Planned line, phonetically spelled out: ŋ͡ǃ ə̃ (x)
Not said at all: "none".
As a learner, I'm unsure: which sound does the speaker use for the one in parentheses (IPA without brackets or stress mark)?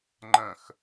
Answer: x